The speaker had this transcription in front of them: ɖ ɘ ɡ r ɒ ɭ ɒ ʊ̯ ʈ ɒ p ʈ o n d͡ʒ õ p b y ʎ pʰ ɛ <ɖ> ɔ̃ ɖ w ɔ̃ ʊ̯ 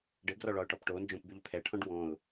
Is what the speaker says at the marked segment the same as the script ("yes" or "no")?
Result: no